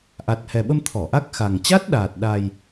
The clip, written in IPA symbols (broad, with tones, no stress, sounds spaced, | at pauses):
ʔ a˨˩ t̚ h ɛ˨˩ ɓ ə˧ m t̪ʰ ɔ˧˩ ʔ a˦˥ k̚ x a˨˩ ŋ t͡ɕ a˦˥ t̚ ɗ aː˨˩ t̚ ɗ a˧ j